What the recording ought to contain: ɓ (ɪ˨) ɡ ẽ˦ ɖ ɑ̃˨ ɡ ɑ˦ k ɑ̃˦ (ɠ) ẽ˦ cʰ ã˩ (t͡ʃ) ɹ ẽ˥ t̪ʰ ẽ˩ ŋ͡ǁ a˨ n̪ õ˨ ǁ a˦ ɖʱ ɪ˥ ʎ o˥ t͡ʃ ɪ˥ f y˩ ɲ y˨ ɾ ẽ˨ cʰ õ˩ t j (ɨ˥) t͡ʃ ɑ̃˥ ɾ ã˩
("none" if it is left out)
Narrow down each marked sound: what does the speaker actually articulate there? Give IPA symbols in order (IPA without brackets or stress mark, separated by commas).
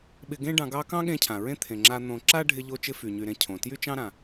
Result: ɪ˨, ɠ, none, y˥